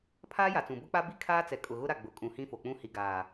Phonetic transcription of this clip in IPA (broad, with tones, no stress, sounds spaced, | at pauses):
pʰ aː˦ j a˨ t͡s ũ˨ b ʊ˦ k͡p a˦ b i˦ kʰ aː˦ t͡s ɛ˨ kʼ ʊ˨ ɣ ʊ˦ ɾ a˨ ɡ͡b ʊ˨ kʼ ũ˨ h ĩ˦ f o˨ k͡p ũ˦ h i˨ ɡ aː˨